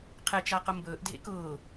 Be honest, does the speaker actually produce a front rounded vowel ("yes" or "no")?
no